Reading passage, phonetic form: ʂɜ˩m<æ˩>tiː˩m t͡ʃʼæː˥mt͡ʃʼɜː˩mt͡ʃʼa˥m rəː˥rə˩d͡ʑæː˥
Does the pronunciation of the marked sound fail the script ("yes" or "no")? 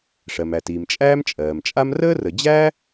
no